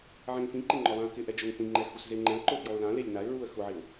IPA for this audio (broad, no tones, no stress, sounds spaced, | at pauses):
ʕ ɛ̃ ŋ f ĩ ǃ e ŋ͡ǃ ɔ lˠ ã ə̯ k ɪ ʔ ɛ d͡ʒ ʊ ŋ θ ĩ ŋ͡ǃ ɛ x u s z e ŋ͡ǃ ɛ̃ ə̯ ǃ ʊ f j ɔ ʊ̯ l ã l e lʲ n a ɪ̯ ɹ u ə̯ x ʊ ʕ ɪ ʊ̯